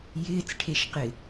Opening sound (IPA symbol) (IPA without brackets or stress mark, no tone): j